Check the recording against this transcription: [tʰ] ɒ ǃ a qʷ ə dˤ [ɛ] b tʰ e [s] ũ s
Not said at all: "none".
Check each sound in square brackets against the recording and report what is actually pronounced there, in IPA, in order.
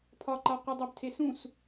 pʰ, ɛ, s

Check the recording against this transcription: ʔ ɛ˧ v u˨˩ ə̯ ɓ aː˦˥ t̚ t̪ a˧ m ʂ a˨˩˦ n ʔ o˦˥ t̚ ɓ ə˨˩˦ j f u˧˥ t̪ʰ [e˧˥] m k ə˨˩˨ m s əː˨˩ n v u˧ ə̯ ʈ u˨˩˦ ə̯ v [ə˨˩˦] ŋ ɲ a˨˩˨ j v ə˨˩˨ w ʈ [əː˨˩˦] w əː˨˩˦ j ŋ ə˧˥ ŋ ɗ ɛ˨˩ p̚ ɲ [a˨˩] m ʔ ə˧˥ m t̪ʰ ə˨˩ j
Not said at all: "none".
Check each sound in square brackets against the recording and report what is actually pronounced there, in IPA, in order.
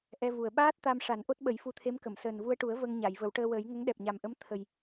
e˧˥, ə˧, əː˧, a˨˩

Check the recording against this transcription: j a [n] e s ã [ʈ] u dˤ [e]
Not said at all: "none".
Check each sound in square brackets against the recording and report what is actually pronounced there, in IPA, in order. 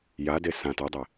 d, t, e

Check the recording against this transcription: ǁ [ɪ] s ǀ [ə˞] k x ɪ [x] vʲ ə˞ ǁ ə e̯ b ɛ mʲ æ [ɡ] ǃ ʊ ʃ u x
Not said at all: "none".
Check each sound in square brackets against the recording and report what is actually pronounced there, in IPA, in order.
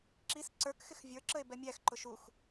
i, ə˞, x, x

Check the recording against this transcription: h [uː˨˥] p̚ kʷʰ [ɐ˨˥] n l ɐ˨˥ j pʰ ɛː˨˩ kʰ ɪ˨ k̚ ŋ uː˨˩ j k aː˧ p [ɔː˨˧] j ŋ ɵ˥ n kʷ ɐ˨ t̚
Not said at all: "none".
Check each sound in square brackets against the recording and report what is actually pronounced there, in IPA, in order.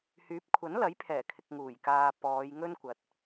yː˨˥, ɐ˨˥, ɔː˨˧

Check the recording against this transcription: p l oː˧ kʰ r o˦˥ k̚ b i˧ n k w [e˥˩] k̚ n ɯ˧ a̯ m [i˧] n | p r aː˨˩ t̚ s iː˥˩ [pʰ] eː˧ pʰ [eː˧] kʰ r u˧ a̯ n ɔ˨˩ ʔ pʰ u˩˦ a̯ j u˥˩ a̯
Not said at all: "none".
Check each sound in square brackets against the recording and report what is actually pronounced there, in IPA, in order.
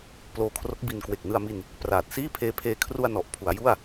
e˨˩, i˧, pʰ, eː˧

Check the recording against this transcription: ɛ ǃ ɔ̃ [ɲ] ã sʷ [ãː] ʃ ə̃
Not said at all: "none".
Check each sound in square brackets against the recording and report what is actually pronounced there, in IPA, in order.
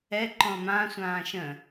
m, ãː

